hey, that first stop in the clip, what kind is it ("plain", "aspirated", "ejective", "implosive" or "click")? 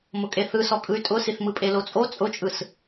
ejective